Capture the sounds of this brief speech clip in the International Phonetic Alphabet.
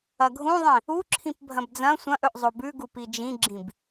ɐ ɡʱ ũ ðˤ ĩ | u ǁʰ ĩ p bʱ ɐ̃ b d͡z ɐ̃ sʷ ɐ̃ ʔ ɵ ʔ zˤ o b ʉ ɡ u p i d͡ʒ ĩ ɡ͡ǁ ĩ b

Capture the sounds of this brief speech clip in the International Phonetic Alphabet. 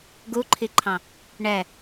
ɡ u ǃʰ i ǃʰ ɑ̃ | ɳ ɛ

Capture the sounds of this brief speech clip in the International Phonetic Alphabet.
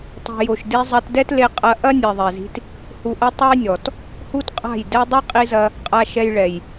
tˤ i̤˨ j o˨ ʃ d i˧ zˤ ɐ˧ t d ɛ˦ t l e˧ qʼ ɐ˧ ʔ ɐ˦ nʲ ɛ˨ ðˤ ɛ˨ z i̤˧ t | h u˨ ʔ ɐ˧ tˤ ɐ˦ j nʲ ɔ˨ t | h u˦ t qʼ a̤˦˨ j d ɛ˦ dˤ ɛ˦ qʼ i˧ z ɐ˧ | qʼ a˧ ʃ ɛ˧ j ɭ ɛ˨ j

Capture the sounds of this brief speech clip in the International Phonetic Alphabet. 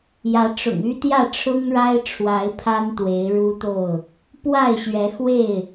j ä˨˦ ʈ͡ʂ ʊ̰˨˩ ŋ y˦ t̪ j ä˥˨ ʈ͡ʂʰ ʊ˦ ŋ ɻ a˦ ɪ̯ ʈ͡ʂʰ w a˨˦ ɪ̯ pʰ a˦ n t̪ w e˨˦ ɪ̯ ɻ u˦ t̪ o˥˨ ʊ̯ | p w a˥˨ ɪ̯ ɕ ɥ ɛ˨˦ x w e˥˨ ɪ̯

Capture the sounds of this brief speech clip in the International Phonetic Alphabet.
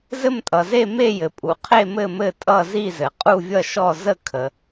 z ɘ˥˧ m tʼ ʌ˩ z e˥˧ m e˥˧ j ɘ˩ pʼ u˩ qʰ e˥˧ m ɘ˥˧ m ɘ˥˧ tʼ ʌ˥˧ z i˥˧ z ɘ˩ qʼ u˥˧ vʲ ʌ˥˧ ʃ ɔ˥˧ z ə˥˧ kʰ ə˩

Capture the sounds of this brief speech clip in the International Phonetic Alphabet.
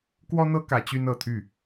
k w ɔ˥ n̪ ɤ˥ k ä˧˥ t͡ɕ y˥ n ɤ˨˩ t̪ʰ y˥˩

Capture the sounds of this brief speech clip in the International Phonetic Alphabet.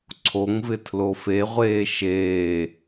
ǀʰ o ŋ v ɪ tʰ l o f e ʁʷ eː ʃ eː

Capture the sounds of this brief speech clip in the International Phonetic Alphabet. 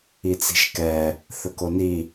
i t͡s i̤ ʃ k ɛ | θ ɵ k o n i

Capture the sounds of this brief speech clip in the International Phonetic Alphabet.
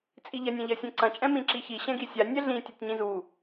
t͡sʼ i ʎ ɐ nʲ ã ʎ ɐ sʲ ɛ̃ ǀ ɐ̃ t͡ʃʼ ɛ̃ m ĩ ǁ i ç i ɕ ɛ̃ ɡ i sʲ a nʲ ɛ ɮ ĩ tʲ u tʲ ɲ ĩ z u

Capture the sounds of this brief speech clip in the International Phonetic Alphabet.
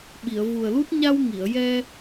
ɓ i˨˩˨ ə̯ v u˨˩ ə̯ l u˦˥ t̚ ɲ a˧ w ŋ i˨˩˨ ə̯ j ɛ˧

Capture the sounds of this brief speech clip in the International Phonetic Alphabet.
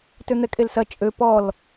t ø n̪ ɛ kʼ e l s ɐ t͡ʃʼ ø p ɔ l

